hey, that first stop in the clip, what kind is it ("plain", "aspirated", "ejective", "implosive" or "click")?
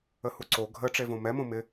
click